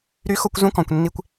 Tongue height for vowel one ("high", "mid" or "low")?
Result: high